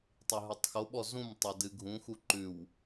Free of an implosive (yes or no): no